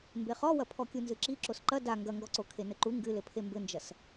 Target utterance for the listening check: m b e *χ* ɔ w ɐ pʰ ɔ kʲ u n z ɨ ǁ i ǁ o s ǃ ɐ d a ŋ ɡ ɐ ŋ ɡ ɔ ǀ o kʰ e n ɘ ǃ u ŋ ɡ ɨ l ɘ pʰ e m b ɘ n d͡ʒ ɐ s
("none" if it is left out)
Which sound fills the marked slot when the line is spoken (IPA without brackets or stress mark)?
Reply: χ